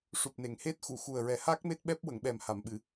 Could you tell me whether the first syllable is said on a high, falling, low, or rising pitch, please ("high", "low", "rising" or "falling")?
low